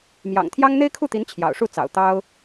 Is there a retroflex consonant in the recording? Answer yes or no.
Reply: yes